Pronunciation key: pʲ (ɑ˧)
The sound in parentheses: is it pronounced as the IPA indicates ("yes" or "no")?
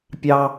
no